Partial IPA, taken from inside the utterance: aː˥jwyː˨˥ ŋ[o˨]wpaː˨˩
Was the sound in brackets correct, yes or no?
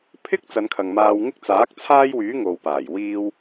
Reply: yes